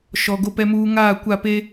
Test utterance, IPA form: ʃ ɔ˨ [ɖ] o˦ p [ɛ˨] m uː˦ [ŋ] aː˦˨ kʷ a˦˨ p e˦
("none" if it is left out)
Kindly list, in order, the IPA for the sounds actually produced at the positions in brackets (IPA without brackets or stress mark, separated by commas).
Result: ɡ, ɛ˦, ŋ